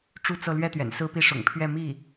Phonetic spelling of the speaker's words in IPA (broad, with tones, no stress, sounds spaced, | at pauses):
ʈ͡ʂ u˥˧ t͡s ɤ˥˧ l ɥ ɛ˥˩ t̪ ɥ ɛ̰˨˩ n s ɹ̩˥ p i˥˩ ʂ ʊ̰˨˩ ŋ pʰ ɥ ɛ˥˧ m i˥˩